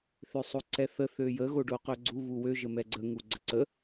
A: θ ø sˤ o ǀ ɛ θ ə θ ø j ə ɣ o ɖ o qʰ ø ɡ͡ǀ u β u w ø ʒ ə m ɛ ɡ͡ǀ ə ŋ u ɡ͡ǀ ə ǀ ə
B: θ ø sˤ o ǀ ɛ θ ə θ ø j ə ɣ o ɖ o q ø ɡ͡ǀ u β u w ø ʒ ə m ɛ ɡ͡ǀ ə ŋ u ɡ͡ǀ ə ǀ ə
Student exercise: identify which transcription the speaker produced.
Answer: B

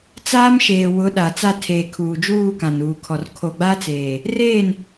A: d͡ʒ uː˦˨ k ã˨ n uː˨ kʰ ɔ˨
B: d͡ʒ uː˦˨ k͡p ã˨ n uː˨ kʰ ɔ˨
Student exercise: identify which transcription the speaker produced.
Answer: A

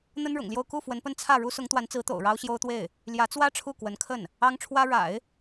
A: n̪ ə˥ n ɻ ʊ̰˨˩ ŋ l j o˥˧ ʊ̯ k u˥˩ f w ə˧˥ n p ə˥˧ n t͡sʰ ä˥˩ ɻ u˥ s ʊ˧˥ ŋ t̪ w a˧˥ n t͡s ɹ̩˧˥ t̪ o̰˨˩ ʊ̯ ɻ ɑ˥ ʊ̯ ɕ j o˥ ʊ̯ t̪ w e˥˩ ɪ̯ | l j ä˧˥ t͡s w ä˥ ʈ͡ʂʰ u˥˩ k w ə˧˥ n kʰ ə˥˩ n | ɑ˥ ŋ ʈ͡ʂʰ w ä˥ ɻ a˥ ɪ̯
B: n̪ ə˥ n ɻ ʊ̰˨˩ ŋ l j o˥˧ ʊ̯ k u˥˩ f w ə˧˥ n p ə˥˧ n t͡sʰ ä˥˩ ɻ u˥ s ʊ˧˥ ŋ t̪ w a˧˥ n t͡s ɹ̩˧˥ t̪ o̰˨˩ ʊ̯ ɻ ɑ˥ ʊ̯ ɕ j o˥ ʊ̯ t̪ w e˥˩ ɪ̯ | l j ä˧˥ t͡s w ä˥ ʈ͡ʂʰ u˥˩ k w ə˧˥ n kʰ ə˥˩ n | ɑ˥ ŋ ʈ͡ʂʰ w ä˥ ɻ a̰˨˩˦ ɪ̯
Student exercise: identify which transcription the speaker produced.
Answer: B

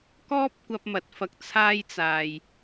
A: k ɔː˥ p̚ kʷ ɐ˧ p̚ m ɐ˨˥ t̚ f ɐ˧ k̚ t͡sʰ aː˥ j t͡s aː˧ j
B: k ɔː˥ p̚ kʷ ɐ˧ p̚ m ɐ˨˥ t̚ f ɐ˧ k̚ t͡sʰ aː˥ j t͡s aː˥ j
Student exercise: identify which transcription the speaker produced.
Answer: A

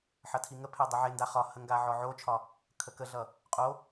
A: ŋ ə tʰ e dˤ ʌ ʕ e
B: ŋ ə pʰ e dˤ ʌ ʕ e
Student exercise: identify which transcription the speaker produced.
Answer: B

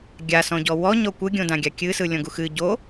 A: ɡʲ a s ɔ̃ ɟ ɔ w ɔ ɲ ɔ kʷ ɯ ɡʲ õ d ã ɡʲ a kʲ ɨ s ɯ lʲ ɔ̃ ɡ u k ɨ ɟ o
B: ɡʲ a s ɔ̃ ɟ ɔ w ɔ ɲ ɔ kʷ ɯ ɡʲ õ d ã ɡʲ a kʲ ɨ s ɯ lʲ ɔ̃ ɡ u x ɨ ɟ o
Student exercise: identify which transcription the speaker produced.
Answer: B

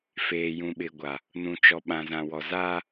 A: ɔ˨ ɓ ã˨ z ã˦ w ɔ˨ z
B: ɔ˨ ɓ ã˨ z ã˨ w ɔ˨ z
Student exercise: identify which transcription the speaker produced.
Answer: B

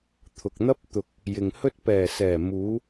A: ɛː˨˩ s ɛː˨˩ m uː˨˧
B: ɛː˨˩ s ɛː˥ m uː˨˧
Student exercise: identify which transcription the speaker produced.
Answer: A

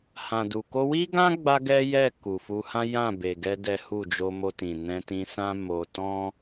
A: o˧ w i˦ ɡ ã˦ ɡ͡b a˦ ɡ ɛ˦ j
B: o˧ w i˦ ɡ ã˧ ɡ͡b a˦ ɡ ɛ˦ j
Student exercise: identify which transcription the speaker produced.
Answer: A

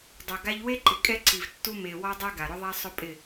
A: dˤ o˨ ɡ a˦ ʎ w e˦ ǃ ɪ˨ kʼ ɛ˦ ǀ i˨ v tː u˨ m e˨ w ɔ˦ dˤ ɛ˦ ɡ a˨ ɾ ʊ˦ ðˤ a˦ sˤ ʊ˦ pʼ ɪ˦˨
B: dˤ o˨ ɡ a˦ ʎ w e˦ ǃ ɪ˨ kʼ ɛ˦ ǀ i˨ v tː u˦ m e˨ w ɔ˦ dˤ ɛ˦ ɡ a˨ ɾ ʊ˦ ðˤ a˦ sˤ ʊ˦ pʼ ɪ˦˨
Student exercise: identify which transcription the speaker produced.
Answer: B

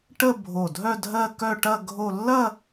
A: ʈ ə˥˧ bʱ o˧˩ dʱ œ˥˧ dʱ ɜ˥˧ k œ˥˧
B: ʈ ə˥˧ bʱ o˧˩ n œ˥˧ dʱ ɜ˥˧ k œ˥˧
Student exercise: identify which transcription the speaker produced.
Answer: A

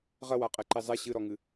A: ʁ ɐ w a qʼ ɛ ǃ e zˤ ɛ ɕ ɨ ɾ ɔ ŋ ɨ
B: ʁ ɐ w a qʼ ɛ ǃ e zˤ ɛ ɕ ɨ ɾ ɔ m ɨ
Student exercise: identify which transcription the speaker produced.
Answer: A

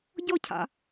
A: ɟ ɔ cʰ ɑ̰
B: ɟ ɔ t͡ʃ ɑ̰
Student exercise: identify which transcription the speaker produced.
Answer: A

